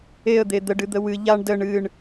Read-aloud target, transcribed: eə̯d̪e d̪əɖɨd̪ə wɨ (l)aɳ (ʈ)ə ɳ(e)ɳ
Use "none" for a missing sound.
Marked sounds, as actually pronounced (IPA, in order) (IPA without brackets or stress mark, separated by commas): ʎ, d, ɨ